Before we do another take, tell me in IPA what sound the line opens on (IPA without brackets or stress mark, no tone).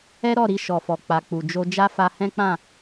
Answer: ɛ